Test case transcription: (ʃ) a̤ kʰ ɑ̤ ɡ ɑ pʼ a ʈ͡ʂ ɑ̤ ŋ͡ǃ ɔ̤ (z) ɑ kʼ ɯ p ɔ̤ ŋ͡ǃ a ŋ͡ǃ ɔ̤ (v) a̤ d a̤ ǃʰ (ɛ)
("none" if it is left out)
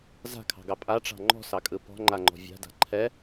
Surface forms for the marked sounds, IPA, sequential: z, s, vʲ, ɛ

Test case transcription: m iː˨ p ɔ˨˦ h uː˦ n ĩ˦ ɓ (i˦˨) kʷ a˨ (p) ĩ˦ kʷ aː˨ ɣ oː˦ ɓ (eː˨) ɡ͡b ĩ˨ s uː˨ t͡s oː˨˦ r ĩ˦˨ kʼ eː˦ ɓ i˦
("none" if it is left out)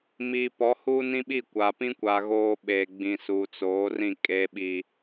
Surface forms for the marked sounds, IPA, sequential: i˦˨, p, eː˨

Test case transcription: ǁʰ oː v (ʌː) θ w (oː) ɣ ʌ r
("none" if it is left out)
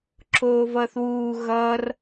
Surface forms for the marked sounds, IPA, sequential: ʌː, uː

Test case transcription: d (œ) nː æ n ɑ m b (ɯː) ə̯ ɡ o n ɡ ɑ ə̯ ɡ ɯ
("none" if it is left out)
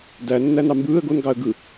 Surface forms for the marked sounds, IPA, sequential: æ, ɯː

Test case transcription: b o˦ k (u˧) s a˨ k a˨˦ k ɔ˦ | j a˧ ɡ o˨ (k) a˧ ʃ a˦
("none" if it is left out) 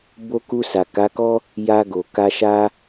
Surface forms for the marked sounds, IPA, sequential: u˧, k

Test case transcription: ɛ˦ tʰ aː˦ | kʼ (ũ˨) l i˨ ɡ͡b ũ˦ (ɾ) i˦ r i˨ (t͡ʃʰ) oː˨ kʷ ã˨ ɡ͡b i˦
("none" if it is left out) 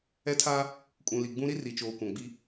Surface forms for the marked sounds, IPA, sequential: ũ˨, ɾ, t͡ʃ

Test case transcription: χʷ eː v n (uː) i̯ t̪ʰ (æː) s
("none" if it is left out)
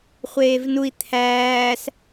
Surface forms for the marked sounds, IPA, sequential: u, æː

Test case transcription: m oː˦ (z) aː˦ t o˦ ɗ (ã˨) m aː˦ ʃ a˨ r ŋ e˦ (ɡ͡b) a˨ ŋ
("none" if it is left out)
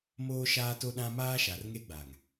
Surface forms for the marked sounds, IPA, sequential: ʃ, ã˦, ɡ͡b

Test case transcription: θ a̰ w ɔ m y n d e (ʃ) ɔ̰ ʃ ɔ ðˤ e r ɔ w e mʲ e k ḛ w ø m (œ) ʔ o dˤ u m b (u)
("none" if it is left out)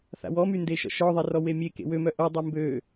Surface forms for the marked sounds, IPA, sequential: ʃ, œ, ø

